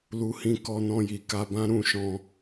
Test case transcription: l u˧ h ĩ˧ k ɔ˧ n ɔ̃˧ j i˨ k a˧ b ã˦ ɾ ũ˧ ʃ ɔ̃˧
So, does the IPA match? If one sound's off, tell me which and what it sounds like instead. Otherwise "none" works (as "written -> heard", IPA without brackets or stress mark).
none